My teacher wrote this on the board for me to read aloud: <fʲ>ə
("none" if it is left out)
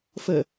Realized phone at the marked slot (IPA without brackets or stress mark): f